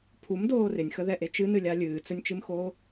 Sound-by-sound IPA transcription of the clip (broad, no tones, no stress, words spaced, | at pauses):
pʰumdoː rɪnʲxəðɛʔe t͡ʃɨnɨlʲa lʲɨːt͡sɵnʲt͡ʃɨmxoː